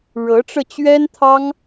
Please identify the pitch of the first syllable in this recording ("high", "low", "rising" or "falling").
rising